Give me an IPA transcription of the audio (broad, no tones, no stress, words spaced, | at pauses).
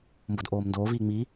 mbodʔoːmndoːviː ŋ͡mi